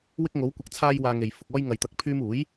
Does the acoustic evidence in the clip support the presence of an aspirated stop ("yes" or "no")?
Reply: yes